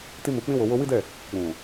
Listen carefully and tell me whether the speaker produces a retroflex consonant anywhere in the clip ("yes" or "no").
no